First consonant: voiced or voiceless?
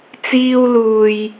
voiceless